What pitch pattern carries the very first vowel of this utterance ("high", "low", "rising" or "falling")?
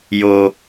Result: high